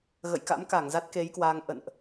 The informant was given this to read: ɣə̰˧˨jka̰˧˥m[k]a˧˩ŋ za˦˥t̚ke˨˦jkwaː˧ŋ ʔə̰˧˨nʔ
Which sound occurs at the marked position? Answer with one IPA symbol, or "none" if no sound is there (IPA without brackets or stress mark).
k